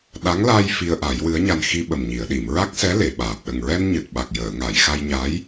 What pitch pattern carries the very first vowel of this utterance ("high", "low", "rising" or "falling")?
rising